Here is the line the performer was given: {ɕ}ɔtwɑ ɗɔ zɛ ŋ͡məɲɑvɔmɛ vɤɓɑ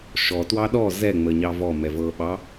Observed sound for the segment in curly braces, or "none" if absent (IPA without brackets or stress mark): ʃ